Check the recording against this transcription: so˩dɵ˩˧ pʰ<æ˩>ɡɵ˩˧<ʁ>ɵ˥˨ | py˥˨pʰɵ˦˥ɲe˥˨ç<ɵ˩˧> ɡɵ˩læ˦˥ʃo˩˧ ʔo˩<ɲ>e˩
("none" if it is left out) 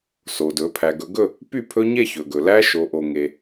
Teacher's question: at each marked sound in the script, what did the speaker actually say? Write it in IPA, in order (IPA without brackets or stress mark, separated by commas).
æ˩, ɡ, ɵ˩, ŋ